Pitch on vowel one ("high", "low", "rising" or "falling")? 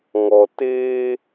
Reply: low